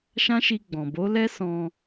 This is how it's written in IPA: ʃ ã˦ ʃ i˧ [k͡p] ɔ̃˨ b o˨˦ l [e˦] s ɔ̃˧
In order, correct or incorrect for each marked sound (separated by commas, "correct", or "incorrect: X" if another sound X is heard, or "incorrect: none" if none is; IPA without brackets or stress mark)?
incorrect: ɡ͡b, incorrect: ɛ˦